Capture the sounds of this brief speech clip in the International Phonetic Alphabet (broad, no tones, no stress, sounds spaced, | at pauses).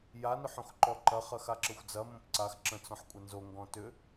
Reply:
j a n ʏ ħ õ x ǃ ɔ ǃ ɐ χ ɐ x a ǁ ə xʷ d͡z ɐ m õ p ǀ a x ǁ ə̃ t͡s ɔ̃ ħ kʷʼ ɐ n z o ŋ ɡ ɔ̃ t ʏ